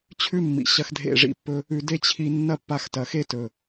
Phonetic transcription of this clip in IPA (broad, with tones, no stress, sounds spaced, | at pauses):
t͡ɕʰ ʉ˦ mː ḭ˨ ɕ ɐ˧ x dʱ ḛ˦˨ ʐ ḭ˧ pː ɵ˦ | ʉ˨ d e˦ t͡ɕʰ i˧ nː ɐ˦ pː a˧ x t ɐ˨ x e˦ t ɵ˨